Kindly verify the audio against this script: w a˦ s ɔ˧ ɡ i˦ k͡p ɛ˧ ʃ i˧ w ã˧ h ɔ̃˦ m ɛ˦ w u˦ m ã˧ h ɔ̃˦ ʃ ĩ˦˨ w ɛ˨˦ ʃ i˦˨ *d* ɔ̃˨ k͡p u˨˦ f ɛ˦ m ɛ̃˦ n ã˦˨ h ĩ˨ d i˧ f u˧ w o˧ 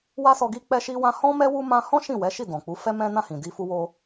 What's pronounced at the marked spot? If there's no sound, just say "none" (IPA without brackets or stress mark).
d